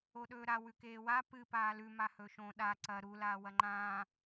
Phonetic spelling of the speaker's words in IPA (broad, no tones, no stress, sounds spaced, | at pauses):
o ɗ ɵː ɾ a w ʉ k eː w a p ɨ p aː l ʉ m a h ɵ ʃ õ ɗ a ǀ ɐ ɾ u l aː w ɐ ŋ͡ǃ ãː